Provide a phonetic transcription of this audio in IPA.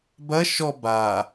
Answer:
b ɐ ʃ ɔ b a

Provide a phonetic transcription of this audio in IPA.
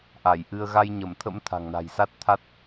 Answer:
ʔ a˧˩ j ʔ ɨ˧ ə̯ ɣ a˧ j ɲ ə˧˩ m t̪ʰ ə̰˧˥ m t̪ʰ a̤˨˩ ŋ n a̤˨˩ j s a˦˥ t̚ t̪ʰ a˦˥ t̚

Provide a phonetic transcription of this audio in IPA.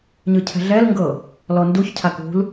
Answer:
ɲ ɯ cʰ ɛ̤ ɮ ɛ l ŋ ɡ ɤ | l ɔ n d u ç cʰ a k ṳ l

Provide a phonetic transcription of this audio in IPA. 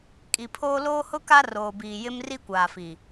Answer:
kʼ i˨ pʰ oː˦ l oː˦ h ʊ˦ k a˦ r oː˨ b iː˨ j ɪ˦ m r i˦ kʷ aː˨ f i˨

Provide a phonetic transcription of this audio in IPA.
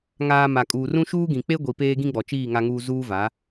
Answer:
ŋ aː˨ m a˨ kʼ uː˨ r ũ˦ ʃ uː˦ ɡ ĩ˨ k͡p e˦ ɡʷ i˨ p eː˦ ɡ ĩ˦ ɡ͡b ɔ˨ t͡ʃ iː˦˨ ŋ a˨ ŋ uː˨ z uː˦ v a˨˦

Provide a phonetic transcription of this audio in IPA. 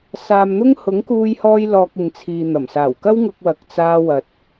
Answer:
s aː˧ m n̪ ʊ˥ ŋ h ʊ˨˥ ŋ k uː˧ j h ɔː˧ j l ɔː˧ k̚ ɪ˨ ŋ t͡sʰ iː˨ n̪ ɐ˨˩ m s aː˨˩ w k ɐ˥ w ŋ ʊ˧ k̚ w ɐ˨ k̚ t͡s aː˧ w ɐ˨ t̚

